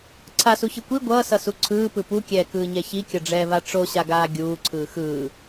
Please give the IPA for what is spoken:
ǀʰ a s u ç ɯ kʷ i ɡʷ ʌː s ʌ s u ǀʰ ɯː p ɯ p u kʲ ɛː k ɯː ɲ ɛ ç i kʲ ʌ ɖ͡ʐ ɛː v a ʈ͡ʂ o ɕ a ɡ aː ɡʲ uː ǀʰ ɯː x ɯː

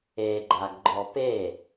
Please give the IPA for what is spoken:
e ɡ͡ǃ a ɡ ɡ͡ǃ ɔ p e

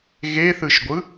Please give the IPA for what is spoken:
ɣ e θ ɯ ʃ ɡʷ ɯ

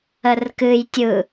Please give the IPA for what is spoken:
ə r k ɨ j tʲ ɯ

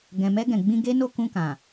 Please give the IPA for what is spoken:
ɡ ɛ̃˨ m ɛ˧ ɡ ɛ̃˨ ɡ͡b ĩ˧ ɡ e˦ n o˦˨ k ũ˧ k ã˨

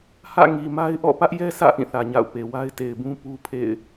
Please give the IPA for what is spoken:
h ä̰˦˨ ŋ i˨ m a˦ ɪ̯ ʔ ɔ̰˦˨ p ä˦ ʔ j ɛ˦ sʰ ä̰˦˨ ʔ ĩ˦˨ θ ä˨ ɲ a̰˦˨ ʊ̯ p e˨ w a˦ ɪ̯ t e˨ ɪ̯ b ũ˦ p u˦ pʰ ḛ˦˨ ɪ̯

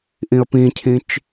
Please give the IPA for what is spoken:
ʔ ĩ ə̯ p ĩ cʰ ĩ t͡ʃ

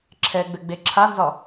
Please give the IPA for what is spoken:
ǁʰ ɛ ɡ͡b ɘ ɡ͡b e ǁʰ a n z ɒ

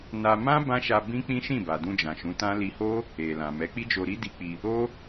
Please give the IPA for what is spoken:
n a˧ m ã˦ b ã˦ ʃ a˧ b ĩ˦ k͡p ĩ˦ ʃ ĩ˦˨ b a˨ d ũ˧ d͡ʒ ã˨ ʃ ũ˨˦ t ã˦ l i˧ h o˦ | e˨ l ã˨ m ɛ˨˦ k͡p i˦ d͡ʒ o˧ ɾ i˦ d i˦ k͡p i˧ | o˦

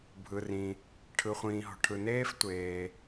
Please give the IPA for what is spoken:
bʱ ɯ˩ r ĩ˩ | ʈʰ ɯ˩ χʷ ĩː˩ ɦ ɔ̤˩ ʈʰ ɯ˩ n eː˥ f tʷ eː˩

